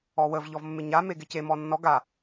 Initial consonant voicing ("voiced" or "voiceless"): voiced